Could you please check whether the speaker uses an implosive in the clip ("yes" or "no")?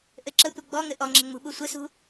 yes